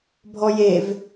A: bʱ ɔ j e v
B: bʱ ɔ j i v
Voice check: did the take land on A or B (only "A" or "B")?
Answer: A